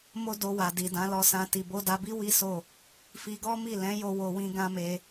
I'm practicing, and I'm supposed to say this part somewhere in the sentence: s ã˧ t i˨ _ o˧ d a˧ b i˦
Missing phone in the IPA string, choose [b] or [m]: b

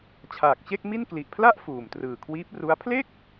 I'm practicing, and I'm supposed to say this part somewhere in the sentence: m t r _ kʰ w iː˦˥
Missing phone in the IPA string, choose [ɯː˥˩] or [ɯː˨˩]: ɯː˨˩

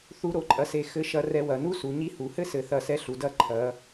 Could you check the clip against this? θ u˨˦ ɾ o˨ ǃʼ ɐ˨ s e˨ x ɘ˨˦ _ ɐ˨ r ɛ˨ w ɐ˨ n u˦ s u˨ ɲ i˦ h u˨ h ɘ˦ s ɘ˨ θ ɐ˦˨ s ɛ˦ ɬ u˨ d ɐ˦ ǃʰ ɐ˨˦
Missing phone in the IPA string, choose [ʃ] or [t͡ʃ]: ʃ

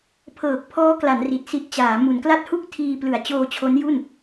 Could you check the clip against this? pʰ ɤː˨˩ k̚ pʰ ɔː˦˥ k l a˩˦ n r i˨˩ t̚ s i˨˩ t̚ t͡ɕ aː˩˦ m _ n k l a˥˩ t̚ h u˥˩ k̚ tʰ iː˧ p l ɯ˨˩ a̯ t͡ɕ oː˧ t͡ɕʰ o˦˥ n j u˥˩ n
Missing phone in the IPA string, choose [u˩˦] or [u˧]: u˩˦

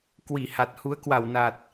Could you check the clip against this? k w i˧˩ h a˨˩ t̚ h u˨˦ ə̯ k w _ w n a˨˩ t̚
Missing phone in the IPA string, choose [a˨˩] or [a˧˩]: a˧˩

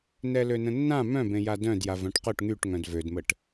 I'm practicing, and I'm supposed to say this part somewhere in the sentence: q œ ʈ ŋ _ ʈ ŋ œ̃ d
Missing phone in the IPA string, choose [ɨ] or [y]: y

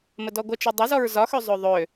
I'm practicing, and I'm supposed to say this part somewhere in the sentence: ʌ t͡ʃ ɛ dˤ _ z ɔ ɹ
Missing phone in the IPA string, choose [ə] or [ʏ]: ʏ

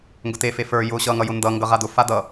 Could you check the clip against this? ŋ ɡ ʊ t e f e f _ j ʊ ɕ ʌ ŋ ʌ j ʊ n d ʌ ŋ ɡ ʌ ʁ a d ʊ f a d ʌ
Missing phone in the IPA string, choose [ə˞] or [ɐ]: ə˞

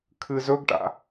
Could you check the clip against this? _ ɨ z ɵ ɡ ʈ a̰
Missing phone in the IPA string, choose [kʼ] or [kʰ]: kʰ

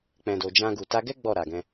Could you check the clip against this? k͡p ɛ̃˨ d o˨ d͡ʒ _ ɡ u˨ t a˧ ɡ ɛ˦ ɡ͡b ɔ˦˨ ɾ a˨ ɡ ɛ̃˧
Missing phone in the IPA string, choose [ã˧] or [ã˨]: ã˧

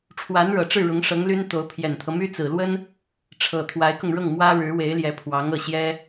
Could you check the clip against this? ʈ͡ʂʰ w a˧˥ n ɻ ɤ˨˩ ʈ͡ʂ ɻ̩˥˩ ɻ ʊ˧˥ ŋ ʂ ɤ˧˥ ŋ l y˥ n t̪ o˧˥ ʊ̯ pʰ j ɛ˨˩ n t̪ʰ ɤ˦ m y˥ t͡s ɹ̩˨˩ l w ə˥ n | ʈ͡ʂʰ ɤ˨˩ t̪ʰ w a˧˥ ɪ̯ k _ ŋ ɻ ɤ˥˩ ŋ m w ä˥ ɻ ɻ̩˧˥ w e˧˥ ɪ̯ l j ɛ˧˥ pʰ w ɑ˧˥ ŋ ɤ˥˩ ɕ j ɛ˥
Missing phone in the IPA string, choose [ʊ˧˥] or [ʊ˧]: ʊ˧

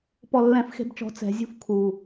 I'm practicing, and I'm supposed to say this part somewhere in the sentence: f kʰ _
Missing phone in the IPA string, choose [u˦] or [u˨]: u˨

